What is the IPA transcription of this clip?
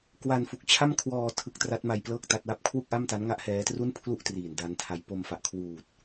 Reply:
kwa˧nfu˨˩k̚ t͡ɕʰa˥˩mkʰwɔː˧ tʰɯ˦˥k̚tra˦˥t̚ma˧j plɤː˥˩k̚ta˦˥t̚wa˥˩p̚ kʰwu˥˩k̚ʔa˥˩mta˦˥nŋa˥˩ʔ hɛː˦˥tru˥˩n pʰlu˥˩ʔ triː˨˩nda˦˥ntʰa˧j po˧mfa˨˩ʔkʰwuː˨˩t̚

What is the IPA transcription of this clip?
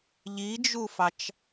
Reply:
ʎid͡ʒufɑt͡ʃ

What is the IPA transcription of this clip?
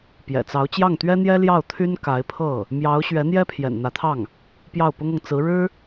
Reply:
pjɛ̰˨˩t͡sɑ˧˥ʊ̯ t͡ɕjɑ˥˩ŋt̪ɥɛ˥ n̪jɛ˥ljɑ˥˩ʊ̯t̪ʰy˥n ka˧˥ɪ̯pʰɤ˥˩ | mjɑ˧˥ʊ̯ ɕɥɛ˧˥n̪jɛ˥pʰjɛ̰˨˩n n̪ä˧˥t̪ʰɑ˥˩ŋ | pjɑ˥˩ʊ̯pʊ˥ŋɤ˨ŋ t͡sɹ̩˧˥ ɻɻ̩˥

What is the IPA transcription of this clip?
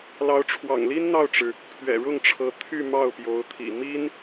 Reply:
lɑ˧˥ʊ̯ʈ͡ʂʰwɑ̰˨˩ŋli˥n n̪ɑ˥˩ʊ̯ʈ͡ʂɻ̩˩ | pʰɥɛ̰˨˩ɻʊ˥˩ŋʈ͡ʂʰɤ˧˥ t̪ʰy˥˧ mɑ˥˩ʊ̯pjo˧˥ʊ̯t̪ʰḭ˨˩ mi˥n

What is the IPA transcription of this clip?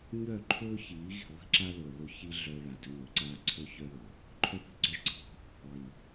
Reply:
ɲœ˦˨ǃʰɵː˦ çiː˨˦ɣi̤˨ lˠi̤˦ ǁa˦ðɵː˨ðɵ˦ çi˦ ɮœ˦ ɭa˨dɵ˦nɵ˨˦ǀaː˦ ǀʰɵ˦ çœ˦ ðɵ˨ | ǃʰœ˦pi̤˦ɡ͡ǀœ˦ʒǀʰi̤˦ | lˠi˨

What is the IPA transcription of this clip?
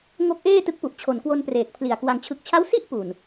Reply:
ŋo˦˥k̚ʔeː˥˩ tɯ˦˥k̚pu˨˩ʔt͡ɕʰo˨˩nkwo˧n preː˨˩k̚pʰli˨˩a̯ kwa˩˦ŋt͡ɕʰɯ˨˩k̚t͡ɕʰa˦˥wsi˥˩ʔ pu˨˩n

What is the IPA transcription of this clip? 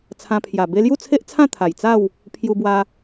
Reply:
t͡sʰã˧pʰja˨˩ be˧lju˥˧t͡sʰe˦ʔt͡sʰã˥˧ t̪ʰa˨˩jt͡sa˥˧w | pʰju˧bwa˧

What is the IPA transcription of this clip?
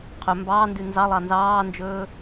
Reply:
qʰɵ mbɑːndʉ nzɑlˠɑ nzɑːnd͡ʒɵː

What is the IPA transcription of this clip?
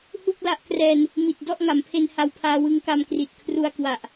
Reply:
hu˥˩k̚la˦˥ʔ krɛː˧n | mi˨˩t̚ dɔ˥˩ʔŋa˩˦mpʰe˧n ha˧wpʰaː˧wɯ˦˥ŋka˧m kri˨˩t̚ kʰru˧a̯ kwa˨˩ʔ

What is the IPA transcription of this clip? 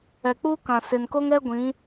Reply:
ɛ˨k͡puː˦kã˨ sɪ˨nko˦ŋɛ˦ ɡʷĩ˨˦

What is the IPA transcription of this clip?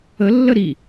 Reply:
əlːə ɾi

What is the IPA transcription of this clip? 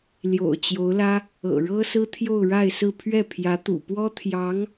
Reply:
ljo̰˨˩ʊ̯ t͡ɕjo˧˥ʊ̯lä˥ | ɤ̰˨˩ɻɤ˥sɹ̩˥ t̪ʰjo˥˧ʊ̯ɻa˥˧ɪ̯ sɹ̩˥˧ pʰɥɛ˥˩ pʰjä˧˥t̪ṵ˨˩pwɔ˥ t̪ʰjɑ˧˥ŋ

